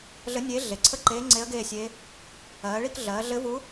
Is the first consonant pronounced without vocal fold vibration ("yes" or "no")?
no